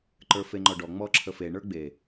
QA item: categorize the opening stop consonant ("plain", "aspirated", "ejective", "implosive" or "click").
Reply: click